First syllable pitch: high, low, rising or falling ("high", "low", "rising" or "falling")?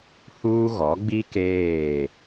high